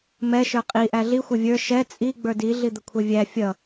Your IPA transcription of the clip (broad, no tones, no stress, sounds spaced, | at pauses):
m ɛ ʃ ə˞ qʼ i ʔ æ ɮ i xʷ ʌ vʲ ə˞ ʃ ɛ t͡sʼ i ɡ͡b ə˞ d i ɮ i d̪ ə kʷʰ ɛ vʲ æ fʲ ʌ